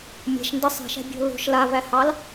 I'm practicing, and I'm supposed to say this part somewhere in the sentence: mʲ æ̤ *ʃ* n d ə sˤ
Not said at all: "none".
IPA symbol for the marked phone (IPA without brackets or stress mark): ʃ